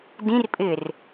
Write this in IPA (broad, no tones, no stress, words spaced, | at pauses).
dĩrpʼɪːr